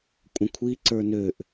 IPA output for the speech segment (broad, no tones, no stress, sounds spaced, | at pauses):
kʷʼ ə̃ kʷʰ i ǀ ə˞ n ø ʔ